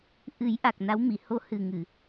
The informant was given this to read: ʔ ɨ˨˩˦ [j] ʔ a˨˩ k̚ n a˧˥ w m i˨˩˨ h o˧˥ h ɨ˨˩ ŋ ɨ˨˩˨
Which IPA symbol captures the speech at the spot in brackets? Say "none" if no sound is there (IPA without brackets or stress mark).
j